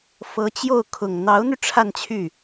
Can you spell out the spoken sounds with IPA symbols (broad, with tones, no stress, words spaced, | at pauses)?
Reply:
fɤ˧˥t͡ɕjo˥˩ʊ̯kʰʊ˨˩ŋ n̪ɑ˧˥ʊ̯n̪y˧ ʈ͡ʂʰa˥˧nt͡ɕʰy˥˩